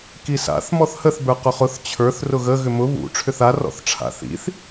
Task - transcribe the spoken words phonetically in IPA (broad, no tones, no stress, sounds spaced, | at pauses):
k i s a̰ θ m ɔ θ h ə θ b ə˞ q ʊ χ ʊ θ t͡ɕʰ ə˞ θ r ʊ ɣ ə ɣ ʏ m ʊ β ṵ ʈ͡ʂʰ ʏ θ a r ɔ̰ θ ʈ͡ʂʰ a̰ θ ḭ θ